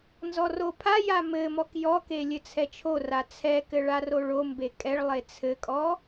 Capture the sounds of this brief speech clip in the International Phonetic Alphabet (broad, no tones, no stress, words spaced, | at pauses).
nzɔropʰaja mɘmɔk jɔke lʲɘt͡sʰɛt͡ʃʰora t͡sʰɛkɘ ɭaroɭombe kʼɛɭlˠe t͡sʰɘkʼɔ